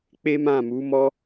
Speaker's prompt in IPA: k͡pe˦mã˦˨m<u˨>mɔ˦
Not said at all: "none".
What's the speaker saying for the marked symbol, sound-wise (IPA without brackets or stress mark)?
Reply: u˨˦